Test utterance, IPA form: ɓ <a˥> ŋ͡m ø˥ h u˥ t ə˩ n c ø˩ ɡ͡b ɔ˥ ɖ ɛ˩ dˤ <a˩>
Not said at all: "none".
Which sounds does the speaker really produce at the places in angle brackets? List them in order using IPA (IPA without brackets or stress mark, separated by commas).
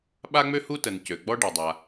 a˥, a˩